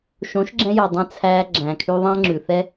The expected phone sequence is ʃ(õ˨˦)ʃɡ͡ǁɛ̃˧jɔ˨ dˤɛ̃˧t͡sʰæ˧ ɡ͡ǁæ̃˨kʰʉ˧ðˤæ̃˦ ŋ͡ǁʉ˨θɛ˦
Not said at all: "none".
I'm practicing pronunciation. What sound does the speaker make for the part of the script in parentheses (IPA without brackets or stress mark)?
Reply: õ˨˦